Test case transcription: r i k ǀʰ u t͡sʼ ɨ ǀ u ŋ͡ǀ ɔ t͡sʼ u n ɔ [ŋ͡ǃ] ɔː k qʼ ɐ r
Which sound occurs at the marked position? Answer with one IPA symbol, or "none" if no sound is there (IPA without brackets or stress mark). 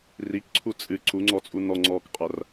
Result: ŋ͡ǀ